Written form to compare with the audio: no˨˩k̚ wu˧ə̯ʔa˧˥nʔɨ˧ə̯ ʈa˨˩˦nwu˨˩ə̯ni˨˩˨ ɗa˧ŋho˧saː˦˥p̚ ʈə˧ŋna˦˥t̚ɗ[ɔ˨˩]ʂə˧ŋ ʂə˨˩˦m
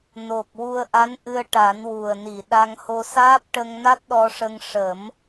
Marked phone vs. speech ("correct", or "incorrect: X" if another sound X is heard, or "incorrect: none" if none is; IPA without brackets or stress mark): incorrect: ɔ˧